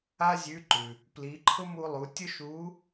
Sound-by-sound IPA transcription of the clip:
a˥ zʲ ʉ˧˥ ǃ ʉ˩ | p l i˩˧ ǃʰ ʊ˥ m u˧ lˠ u˩˧ tʲ ʊ˥ ʃ u˧˥

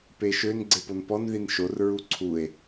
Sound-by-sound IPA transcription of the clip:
p e ʃ ø n ɡ͡ǀ e p o n p ɔ n ð i n ʃ o r ɹ u ǀʰ u e̯

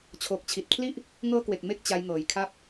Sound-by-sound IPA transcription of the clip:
t͡ɕʰ oː˨˩ k̚ t͡ɕʰ i˨˩ t̚ kʰ l i˥˩ ʔ | ŋ ɤː˦˥ k w e˨˩ k̚ m e˦˥ k̚ t͡ɕ a˦˥ j ŋ ɤː˨˩ j kʰ a˥˩ p̚

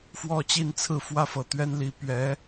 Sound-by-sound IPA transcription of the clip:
f w ɔ˥˧ t͡ɕ i˥˧ n t͡sʰ ɹ̩˥˧ f w ä˥˩ f ɤ˨˩ t̪ ɥ ɛ˥ n l i˧˥ p ɥ ɛ˧˥

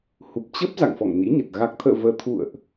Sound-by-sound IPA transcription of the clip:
h u˨˩ p̚ t͡ɕ ə˦˥ p̚ z a̰˧˨ ŋ f ɔ̰˧˨ ŋ n ḭ˧˥ ɲ ə˨˩ t̚ ɣ a˨˩ k̚ t̪ʰ ə̰ː˧˨ v əː˧ t̪ʰ ṵ˧˨ ə̯ ʔ

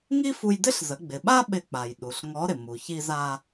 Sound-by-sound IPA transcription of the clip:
ŋ i˥ f u˧ j d ɪ˥ ɬ z ə˩˧ ɡ͡b ɪ˩ ɓ a˥ ɓ ɪ˧ k͡p a˩ j ɗ u˩ ɬ ŋ ɔ˧˥ ɾ ɪ˩ m u˩ ç i˧ z a˧

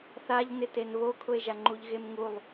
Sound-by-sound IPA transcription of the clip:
θ a ʎ n ɪ t e n β o kʰ ʊ e̯ ʒ a ŋ͡ǃ u ʎ ɣ e m ŋ u lˠ

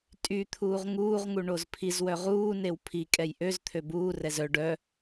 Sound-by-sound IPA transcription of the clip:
tʼ y t̪ʰ uː ʁ ŋ uː ʁ ŋ u ɳ o z pʰ i z w œ ʁ uː n e w pʰ i kʼ ɛ j ʔ ø z t̪ʰ ø b uː r ɛ z œ ɖ œ

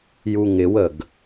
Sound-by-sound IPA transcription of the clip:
j u ŋ ɪ w ə ɡ

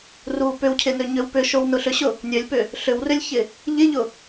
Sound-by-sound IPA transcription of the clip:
r u p ʏ w cʰ ɪ n ø ɲ ø w p ʏ ʃ o w n ʊ ɬ ʏ ɕ ʊ | nʲ ø lʲ p ʏ | ɬ ʏ w r ʏ lʲ ç ɪ | ʎ ɪ ʎ ʊ

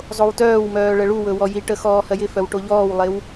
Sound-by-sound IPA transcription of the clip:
zˤ o w t œː w m œː ɭ ə ɭ u w ɵ w ɔ j i ʈ ə x ɔː h ɜ j ɪ f œ w ʈ o ʎ ɔː w lˠ e w

